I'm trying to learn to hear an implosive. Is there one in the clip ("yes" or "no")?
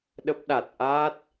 yes